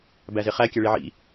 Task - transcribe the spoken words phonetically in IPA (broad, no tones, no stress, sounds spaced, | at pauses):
b æ z e χ æ kʲ æ ɭ i ʕ ḭ